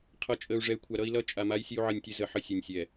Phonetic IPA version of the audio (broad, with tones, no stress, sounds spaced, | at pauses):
qʰ ʌ˨ t͡ʃʼ ə˨ u̯ ʐ ɛ˨ y̯ kʷʰ a˨ ɾ ʌ˦ i̯ l ʌ˦ t͡ʃʼ a˨ m a˦ j sʲ ɨ˦ u̯ ʕ ə˦˨ nʲ tʲ ɨ˦ z ə˨ ħ ə˦ sʲ œ˨ nʲ sʲ ɛ˨